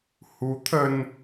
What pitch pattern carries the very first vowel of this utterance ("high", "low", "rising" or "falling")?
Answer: rising